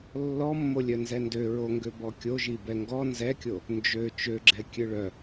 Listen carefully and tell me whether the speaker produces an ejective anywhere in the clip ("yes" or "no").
no